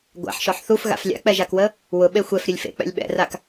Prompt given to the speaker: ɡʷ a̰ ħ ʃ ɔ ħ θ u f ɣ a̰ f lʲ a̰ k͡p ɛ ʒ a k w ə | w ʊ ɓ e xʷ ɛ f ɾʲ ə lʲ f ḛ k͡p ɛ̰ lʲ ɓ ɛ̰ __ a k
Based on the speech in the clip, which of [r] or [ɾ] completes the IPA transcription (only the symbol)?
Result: r